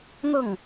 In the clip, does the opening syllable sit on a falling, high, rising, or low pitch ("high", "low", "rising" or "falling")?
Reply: falling